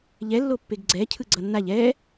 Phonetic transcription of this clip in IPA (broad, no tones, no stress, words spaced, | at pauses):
ʎɛlːo pːeɡɡ͡ǀɛcʰɯ ɡ͡ǀʌnːaʎ ɛ